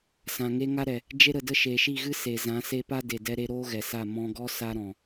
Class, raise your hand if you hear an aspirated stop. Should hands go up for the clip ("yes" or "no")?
no